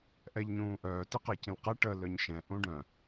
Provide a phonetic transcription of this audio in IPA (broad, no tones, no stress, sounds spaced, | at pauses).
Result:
ʔ ɛ ʎ ɲ ũː ʔ œː t i q ɛ c ĩ l q ɛ ʈ ə l œ ɲ ʃ ɛ̃ ʔ ũ ɖ œ̃